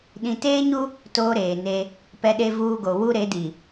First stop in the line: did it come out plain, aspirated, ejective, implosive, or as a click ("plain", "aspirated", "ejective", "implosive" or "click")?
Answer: implosive